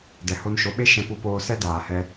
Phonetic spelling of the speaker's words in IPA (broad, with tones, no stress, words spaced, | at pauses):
dɛ˨ho˧nʃo˨˦ɓe˦ ʃɛ̃˦ pu˧poː˧sɛ˦ daː˨hɛ˧